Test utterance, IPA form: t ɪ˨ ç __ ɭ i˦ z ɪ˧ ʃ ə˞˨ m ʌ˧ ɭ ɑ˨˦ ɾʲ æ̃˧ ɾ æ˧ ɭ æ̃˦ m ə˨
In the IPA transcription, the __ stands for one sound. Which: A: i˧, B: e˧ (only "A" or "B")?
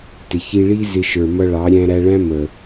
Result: A